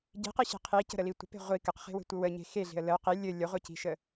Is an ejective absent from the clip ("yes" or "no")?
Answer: yes